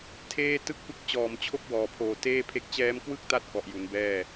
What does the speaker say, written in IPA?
tʰeː˥˩ tɯ˥˩k̚pɯ˦˥k̚ t͡ɕɔː˨˩mt͡ɕʰo˦˥k̚ wɔː˨˩pʰoː˨˩ teː˥˩pʰe˦˥k̚ t͡ɕɛː˦˥mkwɯ˥˩k̚ta˦˥t̚ kɔ˨˩ʔju˩˦nbɛː˥˩

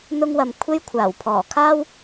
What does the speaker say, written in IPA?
n̪ʊ˧ŋwɐ˨m kʷʰe˧jkʷʰaː˨˩wpʰɔː˨˩ kʰaː˥w

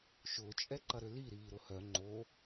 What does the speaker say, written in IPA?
ʃʊːt͡ʃʼɛǃɐɾʏ liɾiːɾʊ hœ ŋ͡ǃo

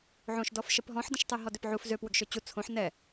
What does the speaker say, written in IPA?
ʕõʃdɔfʃəp ɦɔ̃ħdə̃ʃ tˤeɦɔdʏpʕuf zø pwʏɡʃøt͡ɕu t͡sʰõħ nɛ

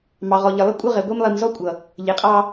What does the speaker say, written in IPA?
mɑ˨ʁɔ˨ ʎɪ˨lˠɪ˦kʷʼə˦ ʁɛ˨ɡʷi˦m lˠi˨mzɔ˦kʷʼʌ˨ | ʎɪ˨qʼɑ˦

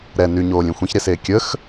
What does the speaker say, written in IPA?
ɾɛ nyɲoːlʲẽ xʷẽçɾeseː kʲəx

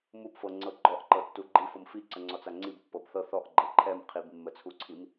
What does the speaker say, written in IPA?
mupfɤŋ͡ǀɤ ɡ͡ǃɔʔǃɤtːu ɡ͡ǃif ɤmfiǀəŋ͡ǀɔt͡s aŋ͡ǀib pːɤbθɤ θɔʔ ɡ͡ǃɛǃʰɛm qʰibmːət͡sʰuǀʰim

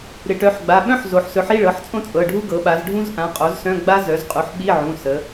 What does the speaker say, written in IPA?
ɾɪ˩˧ʈœ˩˧˩ħɡ͡ba˩˧˩ ɓœ̃˦˥ħ zo˩˧ħsɵ˩˥ħi˧˥˧ ɭɤ˩˧˩ħt͡sʼõ˦˥t͡sʼɤ˩˧˩ɖʱu˦˥ ɡɤ˩˧ɓa˩˧z ɖʱũ˦˥zʔã˩˧˩qʼo˩˥zsœ̃˧˥˧ ɡ͡ba˦˥zœ˩˥zqʼu˩˥ħ ɓi˧˥˧ ʕũ˩˧˩sə˩˧

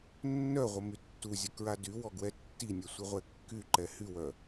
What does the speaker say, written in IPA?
nːœʁʷə mytːuzʲə kɹadywɔ ɡwɛtːinʲɛ sʷiʁʷɛkːyǃɛ hywœ

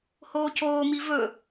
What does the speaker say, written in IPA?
hoːcoːmi vɵ

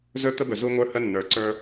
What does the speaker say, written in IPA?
zɵ˦t̪ə˦bɵ˨ zu˦ŋʷə˞˦hə˦ nːə˞˨ǀə˞˦

